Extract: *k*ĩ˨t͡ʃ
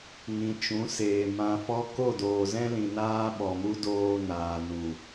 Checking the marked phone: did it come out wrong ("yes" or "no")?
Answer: yes